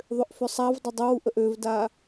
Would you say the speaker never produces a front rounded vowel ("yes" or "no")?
no